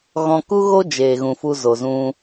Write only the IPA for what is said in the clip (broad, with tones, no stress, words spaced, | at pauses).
ɣɔ̃˧ku˦ɣo˦ d͡ʒeː˨ɣũ˨ fu˧zo˨zũ˧